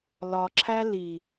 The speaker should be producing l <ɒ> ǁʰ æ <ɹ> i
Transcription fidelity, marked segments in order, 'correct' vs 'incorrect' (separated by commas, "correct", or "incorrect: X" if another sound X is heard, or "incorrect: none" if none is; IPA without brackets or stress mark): correct, incorrect: l